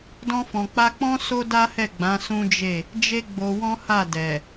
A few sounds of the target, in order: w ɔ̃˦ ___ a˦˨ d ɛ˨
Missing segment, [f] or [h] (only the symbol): h